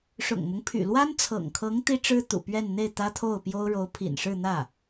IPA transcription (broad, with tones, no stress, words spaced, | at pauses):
ʂʊ̰˨˩ŋmʊ˦ŋpʰy̰˨˩ lwa˥nt͡sʰɤ̰˨˩ŋkʰɤ˧˥ŋ t̪i˥ʈ͡ʂɻ̩˥ t̪ṵ˨˩pɥɛ˥˧n n̪e˥˩ɪ̯ t̪ä˥t̪ʰo˥˩ʊ̯pjo˥ʊ̯ ɻo˧˥ʊ̯pʰḭ˨˩nʂɻ̩˥˧n̪ä˥˩